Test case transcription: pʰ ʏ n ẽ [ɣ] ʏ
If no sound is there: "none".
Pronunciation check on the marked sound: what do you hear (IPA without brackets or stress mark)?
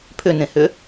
h